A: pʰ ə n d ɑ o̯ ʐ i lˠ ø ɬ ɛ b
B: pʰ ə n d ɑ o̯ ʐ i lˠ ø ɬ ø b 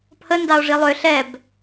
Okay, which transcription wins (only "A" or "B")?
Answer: A